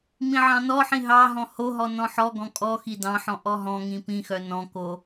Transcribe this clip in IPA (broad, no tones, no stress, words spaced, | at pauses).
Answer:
mĩʕɑ̃nɔħĩ ɦɑɦɔ̃ hoɦɔ nɔ̃ħɔɡɔ̃ kʼɔxi dɑ̃ħɔ̃ ʔɔɦɔ̃ŋĩ pĩxœ nɔ̃ko